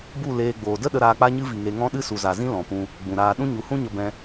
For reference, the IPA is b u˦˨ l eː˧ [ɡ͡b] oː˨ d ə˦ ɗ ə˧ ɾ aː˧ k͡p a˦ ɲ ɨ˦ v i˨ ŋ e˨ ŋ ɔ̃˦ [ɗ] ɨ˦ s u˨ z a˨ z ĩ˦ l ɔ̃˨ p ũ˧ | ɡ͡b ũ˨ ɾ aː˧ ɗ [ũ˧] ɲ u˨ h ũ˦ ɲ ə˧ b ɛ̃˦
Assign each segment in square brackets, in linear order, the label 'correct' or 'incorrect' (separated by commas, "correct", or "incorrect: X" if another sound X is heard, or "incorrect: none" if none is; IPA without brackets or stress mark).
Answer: correct, correct, incorrect: ũ˦